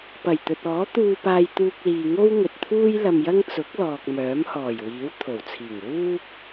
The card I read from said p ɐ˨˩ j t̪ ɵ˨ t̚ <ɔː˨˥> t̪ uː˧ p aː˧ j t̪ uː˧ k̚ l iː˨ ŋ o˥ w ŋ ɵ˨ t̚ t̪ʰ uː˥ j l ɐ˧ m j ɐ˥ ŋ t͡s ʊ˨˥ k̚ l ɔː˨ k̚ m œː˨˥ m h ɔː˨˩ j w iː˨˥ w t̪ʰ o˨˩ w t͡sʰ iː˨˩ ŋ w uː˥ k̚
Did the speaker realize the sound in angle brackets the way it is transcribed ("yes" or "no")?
yes